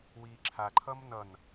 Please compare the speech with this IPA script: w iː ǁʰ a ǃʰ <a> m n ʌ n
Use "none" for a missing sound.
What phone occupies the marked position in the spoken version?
ʌ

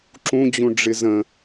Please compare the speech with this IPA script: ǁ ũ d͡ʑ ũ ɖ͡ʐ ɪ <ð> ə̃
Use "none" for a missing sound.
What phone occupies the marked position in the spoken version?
z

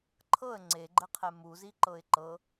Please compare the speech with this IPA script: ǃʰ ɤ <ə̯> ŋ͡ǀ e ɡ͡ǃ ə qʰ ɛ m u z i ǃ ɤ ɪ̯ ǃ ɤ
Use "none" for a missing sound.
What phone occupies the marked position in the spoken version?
ə̯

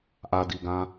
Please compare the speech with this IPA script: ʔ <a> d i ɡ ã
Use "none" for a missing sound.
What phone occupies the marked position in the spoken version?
a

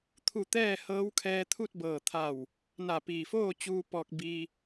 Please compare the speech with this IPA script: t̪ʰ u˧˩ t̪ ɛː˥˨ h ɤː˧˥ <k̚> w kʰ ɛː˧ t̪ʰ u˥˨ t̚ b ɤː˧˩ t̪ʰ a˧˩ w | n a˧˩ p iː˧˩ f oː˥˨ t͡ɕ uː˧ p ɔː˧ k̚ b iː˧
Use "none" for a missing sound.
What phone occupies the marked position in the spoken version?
none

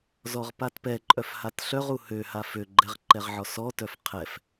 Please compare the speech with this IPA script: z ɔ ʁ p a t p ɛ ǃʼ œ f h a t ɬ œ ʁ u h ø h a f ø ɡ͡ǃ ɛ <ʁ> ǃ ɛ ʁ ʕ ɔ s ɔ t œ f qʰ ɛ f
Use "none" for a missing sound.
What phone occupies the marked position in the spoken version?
ʁ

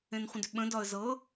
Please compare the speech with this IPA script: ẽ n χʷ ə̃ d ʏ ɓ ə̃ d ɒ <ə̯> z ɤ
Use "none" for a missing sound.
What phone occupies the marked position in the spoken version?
ə̯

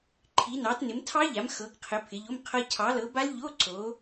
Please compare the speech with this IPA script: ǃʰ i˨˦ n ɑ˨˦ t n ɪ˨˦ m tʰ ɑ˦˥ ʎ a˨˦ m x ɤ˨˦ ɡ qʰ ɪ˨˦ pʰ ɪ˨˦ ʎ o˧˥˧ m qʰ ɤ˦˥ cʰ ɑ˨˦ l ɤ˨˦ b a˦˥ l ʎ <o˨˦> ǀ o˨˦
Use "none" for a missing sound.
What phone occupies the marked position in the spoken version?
o˧˥˧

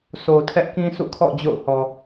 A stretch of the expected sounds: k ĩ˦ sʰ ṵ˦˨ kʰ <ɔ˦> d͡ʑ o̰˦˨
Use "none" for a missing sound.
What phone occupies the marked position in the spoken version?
ɔ̰˦˨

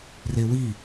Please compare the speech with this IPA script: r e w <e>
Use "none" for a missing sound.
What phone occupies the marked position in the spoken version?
i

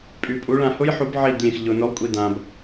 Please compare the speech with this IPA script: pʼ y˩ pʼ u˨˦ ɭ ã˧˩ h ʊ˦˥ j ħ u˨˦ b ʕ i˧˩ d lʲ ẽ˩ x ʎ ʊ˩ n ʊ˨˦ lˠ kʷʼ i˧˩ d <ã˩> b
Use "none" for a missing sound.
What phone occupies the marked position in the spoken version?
ã˩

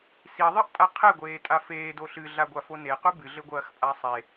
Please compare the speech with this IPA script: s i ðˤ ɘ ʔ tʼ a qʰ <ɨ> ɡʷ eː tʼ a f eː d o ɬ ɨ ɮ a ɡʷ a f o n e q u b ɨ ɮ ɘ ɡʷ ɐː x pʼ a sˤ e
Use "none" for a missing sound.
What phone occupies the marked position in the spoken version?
e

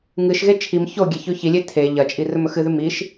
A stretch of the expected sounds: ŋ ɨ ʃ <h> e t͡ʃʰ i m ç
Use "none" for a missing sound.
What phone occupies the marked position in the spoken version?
ɣ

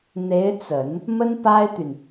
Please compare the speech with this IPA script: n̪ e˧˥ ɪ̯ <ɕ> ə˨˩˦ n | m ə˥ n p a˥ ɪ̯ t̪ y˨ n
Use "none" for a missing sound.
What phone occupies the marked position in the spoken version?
t͡s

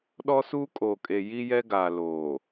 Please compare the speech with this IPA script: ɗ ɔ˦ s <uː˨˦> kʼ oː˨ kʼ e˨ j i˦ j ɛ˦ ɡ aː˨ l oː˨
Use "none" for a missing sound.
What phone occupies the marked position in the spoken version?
uː˦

